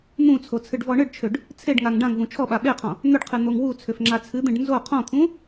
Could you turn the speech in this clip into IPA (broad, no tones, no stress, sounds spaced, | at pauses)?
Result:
n̪ ũ t͡sʰ o t͡sʰ ɨ ɖ v ɔ ɳ ɨ ɖ t͡ʃʰ ʏ ɖ | t͡sʰ e ɖ ŋ a ŋ ɖ ã ŋ v ũ t͡ʃʰ ɔ ɓ a ɓ e qʰ ɔ̃ | n̪ ʏ ɖ qʰ ɨ n̪ o ŋ w u t͡sʰ ʏ f ŋ͡ǁ a t͡sʰ ɨ d̪ ẽ ɖ n z o qʰ ɔ̃ t̪ʰ ũ